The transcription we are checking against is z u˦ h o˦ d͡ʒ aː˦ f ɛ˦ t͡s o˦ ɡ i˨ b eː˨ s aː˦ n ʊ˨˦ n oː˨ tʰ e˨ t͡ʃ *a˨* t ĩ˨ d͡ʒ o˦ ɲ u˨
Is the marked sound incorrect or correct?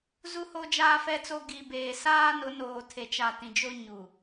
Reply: correct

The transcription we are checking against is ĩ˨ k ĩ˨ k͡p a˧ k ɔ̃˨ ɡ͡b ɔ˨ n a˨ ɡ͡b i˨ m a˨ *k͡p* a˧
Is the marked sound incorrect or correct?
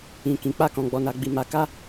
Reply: incorrect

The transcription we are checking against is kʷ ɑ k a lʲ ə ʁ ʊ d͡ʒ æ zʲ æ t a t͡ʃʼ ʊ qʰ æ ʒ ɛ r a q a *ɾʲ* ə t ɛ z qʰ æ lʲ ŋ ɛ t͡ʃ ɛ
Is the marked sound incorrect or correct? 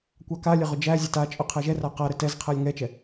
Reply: incorrect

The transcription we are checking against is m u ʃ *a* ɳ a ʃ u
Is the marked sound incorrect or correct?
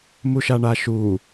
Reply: correct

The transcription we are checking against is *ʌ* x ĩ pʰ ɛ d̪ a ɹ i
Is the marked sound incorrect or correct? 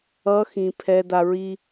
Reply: correct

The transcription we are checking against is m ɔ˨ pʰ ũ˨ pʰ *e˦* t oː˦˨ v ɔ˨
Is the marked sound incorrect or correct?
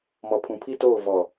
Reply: incorrect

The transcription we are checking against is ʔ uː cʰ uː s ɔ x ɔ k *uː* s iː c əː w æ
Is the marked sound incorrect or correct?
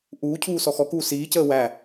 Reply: correct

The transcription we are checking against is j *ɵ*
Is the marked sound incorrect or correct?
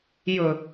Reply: correct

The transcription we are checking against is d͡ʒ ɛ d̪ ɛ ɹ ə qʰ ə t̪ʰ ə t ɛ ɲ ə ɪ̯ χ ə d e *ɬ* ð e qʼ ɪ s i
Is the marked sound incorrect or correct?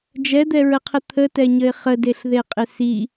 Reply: correct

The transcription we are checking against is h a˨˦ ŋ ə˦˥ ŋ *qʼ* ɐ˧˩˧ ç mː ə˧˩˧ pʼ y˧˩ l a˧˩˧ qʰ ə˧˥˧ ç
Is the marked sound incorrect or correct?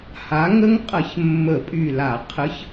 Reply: correct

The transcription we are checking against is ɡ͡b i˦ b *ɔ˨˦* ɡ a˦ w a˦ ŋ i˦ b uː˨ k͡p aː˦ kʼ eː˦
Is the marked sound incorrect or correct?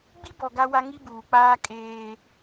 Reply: incorrect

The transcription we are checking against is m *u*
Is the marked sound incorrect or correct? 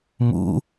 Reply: incorrect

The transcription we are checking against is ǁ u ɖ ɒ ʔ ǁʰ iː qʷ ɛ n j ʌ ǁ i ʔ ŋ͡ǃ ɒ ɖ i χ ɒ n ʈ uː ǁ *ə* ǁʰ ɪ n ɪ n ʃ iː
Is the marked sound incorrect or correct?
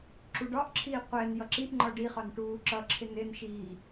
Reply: incorrect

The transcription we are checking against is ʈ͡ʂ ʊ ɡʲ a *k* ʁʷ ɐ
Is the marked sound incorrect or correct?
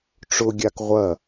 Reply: correct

